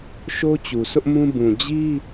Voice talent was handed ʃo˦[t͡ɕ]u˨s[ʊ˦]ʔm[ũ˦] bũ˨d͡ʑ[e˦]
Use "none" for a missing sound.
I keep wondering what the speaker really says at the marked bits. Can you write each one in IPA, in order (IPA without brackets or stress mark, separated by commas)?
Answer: t͡ɕ, ʊ˦, ũ˦, i˦